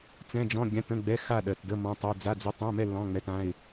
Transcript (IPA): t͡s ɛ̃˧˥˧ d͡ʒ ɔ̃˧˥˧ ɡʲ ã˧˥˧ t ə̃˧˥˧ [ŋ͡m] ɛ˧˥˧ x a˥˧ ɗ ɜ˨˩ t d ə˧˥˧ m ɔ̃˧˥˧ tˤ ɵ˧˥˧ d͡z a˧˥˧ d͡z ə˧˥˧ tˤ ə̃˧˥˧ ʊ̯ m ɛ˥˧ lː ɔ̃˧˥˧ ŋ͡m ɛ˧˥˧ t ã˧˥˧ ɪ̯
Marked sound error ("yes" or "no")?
yes